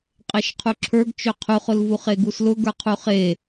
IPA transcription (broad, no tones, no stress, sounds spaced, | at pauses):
qʼ e ʃ qʰ u ǁʰ ə˞ ɡ t͡ʃ ø qʰ u χ ʊ l v u χ e ɡ u s l ʊ ɡ ə˞ qʰ u χ e